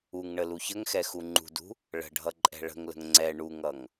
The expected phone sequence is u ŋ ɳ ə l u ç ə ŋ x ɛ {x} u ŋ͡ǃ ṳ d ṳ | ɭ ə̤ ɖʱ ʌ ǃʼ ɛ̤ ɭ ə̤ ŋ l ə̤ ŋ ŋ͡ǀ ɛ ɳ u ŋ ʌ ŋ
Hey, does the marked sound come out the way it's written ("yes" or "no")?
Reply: yes